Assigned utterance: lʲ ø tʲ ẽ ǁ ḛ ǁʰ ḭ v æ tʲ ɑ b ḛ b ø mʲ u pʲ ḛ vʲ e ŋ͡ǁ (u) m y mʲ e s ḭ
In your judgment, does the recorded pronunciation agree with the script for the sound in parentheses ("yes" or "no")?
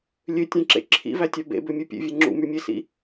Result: no